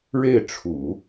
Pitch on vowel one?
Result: falling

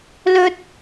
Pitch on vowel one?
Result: high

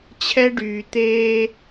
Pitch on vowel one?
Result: high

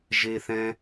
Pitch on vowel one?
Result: high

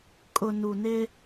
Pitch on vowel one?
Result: low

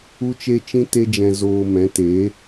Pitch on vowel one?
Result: high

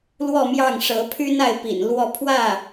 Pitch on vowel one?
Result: falling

